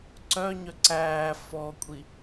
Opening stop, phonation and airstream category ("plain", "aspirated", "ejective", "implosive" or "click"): click